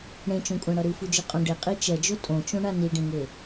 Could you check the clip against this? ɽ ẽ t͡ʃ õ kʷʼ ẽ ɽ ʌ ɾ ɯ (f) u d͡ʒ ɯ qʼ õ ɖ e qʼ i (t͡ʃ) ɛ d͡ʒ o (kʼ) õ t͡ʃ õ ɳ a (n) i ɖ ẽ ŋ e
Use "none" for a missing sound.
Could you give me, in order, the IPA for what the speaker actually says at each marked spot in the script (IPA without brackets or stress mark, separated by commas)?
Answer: f, t͡ʃ, tʼ, n